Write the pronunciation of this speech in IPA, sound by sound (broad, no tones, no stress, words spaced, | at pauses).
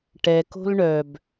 ʈɛko̤l ɳœb